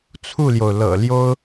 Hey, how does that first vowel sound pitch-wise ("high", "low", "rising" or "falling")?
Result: falling